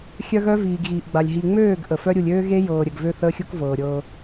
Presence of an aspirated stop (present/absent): absent